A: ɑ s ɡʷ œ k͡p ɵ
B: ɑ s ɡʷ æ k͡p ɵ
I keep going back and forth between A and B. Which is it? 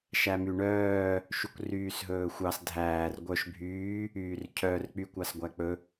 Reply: B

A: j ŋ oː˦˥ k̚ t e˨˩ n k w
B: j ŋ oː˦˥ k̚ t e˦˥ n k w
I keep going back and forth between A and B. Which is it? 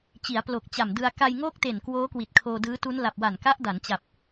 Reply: A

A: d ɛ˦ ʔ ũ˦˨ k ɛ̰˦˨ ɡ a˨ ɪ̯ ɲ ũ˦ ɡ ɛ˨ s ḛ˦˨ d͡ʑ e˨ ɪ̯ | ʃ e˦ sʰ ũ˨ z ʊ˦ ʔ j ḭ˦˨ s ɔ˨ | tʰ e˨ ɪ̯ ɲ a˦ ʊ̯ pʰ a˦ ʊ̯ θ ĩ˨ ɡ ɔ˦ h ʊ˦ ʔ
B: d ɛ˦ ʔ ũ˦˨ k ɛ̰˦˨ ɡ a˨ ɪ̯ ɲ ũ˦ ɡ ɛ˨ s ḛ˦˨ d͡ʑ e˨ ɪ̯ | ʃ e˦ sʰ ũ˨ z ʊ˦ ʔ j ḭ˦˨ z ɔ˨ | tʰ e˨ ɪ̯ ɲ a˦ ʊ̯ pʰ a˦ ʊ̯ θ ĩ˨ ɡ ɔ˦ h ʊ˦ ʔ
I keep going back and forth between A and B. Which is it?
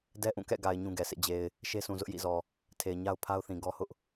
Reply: B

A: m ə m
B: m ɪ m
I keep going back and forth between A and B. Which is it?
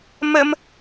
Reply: A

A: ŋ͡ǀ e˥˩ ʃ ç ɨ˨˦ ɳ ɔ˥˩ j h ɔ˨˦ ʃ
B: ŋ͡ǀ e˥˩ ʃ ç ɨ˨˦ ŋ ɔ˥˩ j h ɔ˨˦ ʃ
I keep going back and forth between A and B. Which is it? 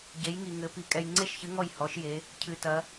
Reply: B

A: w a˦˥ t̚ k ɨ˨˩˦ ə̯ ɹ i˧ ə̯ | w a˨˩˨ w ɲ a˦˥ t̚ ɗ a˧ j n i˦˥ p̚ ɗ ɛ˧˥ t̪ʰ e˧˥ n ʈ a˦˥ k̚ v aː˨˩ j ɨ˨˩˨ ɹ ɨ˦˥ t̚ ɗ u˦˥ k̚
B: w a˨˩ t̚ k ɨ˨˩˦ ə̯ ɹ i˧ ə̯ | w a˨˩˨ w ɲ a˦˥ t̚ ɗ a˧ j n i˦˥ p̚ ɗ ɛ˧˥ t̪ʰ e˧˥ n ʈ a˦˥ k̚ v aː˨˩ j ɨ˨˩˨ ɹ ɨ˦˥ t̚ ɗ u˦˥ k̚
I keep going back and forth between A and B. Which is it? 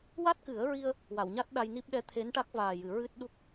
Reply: A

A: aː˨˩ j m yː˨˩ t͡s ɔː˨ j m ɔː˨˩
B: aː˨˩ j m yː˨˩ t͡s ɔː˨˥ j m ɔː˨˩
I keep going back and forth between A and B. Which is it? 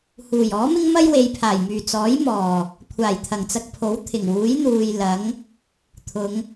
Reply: B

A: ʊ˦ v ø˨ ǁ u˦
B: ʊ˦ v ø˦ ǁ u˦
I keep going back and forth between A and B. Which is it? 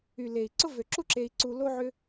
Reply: A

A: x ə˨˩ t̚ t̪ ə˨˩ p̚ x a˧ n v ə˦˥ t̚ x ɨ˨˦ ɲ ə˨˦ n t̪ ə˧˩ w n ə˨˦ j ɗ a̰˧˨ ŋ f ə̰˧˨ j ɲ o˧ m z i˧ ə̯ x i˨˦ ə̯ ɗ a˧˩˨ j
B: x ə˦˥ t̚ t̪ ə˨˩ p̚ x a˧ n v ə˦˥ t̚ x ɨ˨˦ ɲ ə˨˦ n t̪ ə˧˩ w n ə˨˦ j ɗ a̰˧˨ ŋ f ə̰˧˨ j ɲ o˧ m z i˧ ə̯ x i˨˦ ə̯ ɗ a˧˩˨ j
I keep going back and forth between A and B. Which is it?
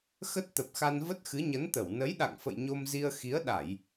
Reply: B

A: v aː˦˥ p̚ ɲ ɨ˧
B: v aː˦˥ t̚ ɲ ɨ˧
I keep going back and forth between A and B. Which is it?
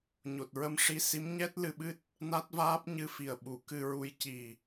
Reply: A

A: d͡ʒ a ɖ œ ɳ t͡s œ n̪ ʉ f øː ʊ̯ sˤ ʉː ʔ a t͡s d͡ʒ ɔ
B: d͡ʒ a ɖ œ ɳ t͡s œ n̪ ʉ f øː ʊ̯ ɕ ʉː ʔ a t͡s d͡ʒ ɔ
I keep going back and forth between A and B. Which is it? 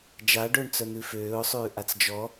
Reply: A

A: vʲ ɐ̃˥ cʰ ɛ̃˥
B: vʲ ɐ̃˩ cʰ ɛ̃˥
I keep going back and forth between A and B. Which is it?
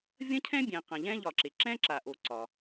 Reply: A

